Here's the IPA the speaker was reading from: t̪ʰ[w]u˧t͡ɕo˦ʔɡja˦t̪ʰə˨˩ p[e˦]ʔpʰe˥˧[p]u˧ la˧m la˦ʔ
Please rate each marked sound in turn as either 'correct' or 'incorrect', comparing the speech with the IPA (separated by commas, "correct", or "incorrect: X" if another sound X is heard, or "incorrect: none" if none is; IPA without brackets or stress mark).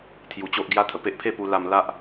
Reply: incorrect: j, correct, correct